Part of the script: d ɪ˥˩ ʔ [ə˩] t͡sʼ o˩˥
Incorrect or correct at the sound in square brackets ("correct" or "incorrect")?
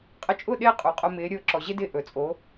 incorrect